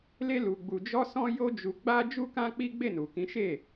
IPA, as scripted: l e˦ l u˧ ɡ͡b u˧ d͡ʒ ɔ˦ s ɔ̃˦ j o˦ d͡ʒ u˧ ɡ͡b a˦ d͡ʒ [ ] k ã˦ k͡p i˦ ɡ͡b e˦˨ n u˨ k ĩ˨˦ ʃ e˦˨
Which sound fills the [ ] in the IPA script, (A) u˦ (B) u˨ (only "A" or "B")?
A